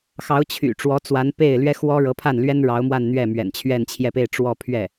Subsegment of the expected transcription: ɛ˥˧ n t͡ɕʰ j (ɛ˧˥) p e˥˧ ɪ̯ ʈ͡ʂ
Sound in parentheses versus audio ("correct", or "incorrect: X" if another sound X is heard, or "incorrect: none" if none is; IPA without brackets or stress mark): incorrect: ɛ˥˧